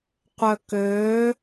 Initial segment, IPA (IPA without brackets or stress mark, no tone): qʷ